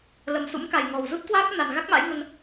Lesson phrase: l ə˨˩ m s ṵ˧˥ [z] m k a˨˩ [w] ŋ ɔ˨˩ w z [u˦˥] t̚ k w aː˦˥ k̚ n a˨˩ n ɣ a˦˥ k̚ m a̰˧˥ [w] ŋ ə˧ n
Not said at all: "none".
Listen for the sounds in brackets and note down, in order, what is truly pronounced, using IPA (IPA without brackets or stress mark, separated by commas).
none, j, u˦˥, j